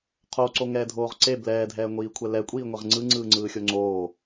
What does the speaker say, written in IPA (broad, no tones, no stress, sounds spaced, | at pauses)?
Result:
qʰ o ǀ o ŋ ɛː dʱ oː ʁ ǀ e b l ɛː dʱ ɛː ŋʷ iː kʷʰ ɛ l ɛ kʷʼ iː ŋʷ e ʁ ŋ͡ǀ ɯ ŋ͡ǀ ɯː ŋ͡ǀ ɯː xʲ o ŋ͡ǀ oː